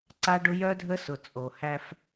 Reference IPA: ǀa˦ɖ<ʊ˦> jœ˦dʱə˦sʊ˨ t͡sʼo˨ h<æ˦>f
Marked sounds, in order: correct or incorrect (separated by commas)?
correct, correct